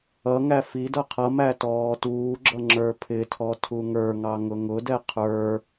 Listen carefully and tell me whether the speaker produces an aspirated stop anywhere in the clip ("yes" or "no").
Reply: yes